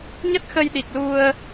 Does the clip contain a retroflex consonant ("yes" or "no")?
no